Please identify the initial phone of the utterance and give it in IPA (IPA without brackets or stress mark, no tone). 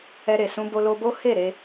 ɛ